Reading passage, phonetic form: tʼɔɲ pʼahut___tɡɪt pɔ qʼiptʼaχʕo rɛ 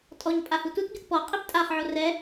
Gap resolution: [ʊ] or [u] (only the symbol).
u